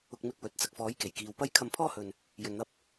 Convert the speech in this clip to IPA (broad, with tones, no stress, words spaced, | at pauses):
ʊ˧k̚mɪ˧k̚ wɵ˨˥t̚ t͡sɐ˨k̚fɔː˨˥jke˨˩j kiː˨wpɐ˥j kʰɐ˧mpʰɔː˥hɵ˧n | jɵ˧nn̪ɐ˥p̚